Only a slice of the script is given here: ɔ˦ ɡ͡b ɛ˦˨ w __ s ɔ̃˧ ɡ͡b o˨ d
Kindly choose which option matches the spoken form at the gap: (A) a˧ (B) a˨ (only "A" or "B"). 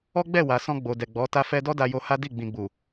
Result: B